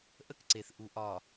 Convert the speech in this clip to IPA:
ʔ ə˦ k ǀ e˨ θ ʔ u˨ ʔ ɒ˨

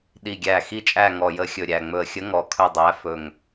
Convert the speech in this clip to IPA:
ɗ i˨˩ ɡʲ æ˨˩ x i˦˨ t͡ʃʼ æ˦˨ ŋ ɔ˨˩ j ə˨˥ xʲ ɵ˨˩ ɾʲ æ˨˩ ŋ͡m ɵ˨˩ ə̯ xʲ ə˨˥ ŋ ɔ˨˩ kʰ ɵ˦˨ dˤ æ˨˥ f ɵ˨˩ ŋ

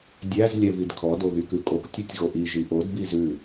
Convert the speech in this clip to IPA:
dʲ æ z lʲ ɛ v i d kʰ ɔ d o ɣ y k ʉ kʼ o k tʲ u tʲ ɣ o ʔ i ʒ i ʔ o d b i z ʉ

